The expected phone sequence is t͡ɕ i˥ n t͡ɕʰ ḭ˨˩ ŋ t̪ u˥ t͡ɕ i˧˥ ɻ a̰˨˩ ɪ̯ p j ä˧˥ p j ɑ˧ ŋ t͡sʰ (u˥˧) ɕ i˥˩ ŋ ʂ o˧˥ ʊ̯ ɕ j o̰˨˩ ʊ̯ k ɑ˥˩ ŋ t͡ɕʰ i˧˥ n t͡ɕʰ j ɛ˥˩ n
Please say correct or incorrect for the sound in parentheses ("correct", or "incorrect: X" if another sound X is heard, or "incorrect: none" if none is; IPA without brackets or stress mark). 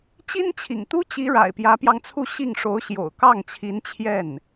correct